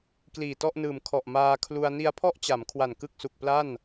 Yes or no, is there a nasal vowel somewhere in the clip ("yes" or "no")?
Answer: no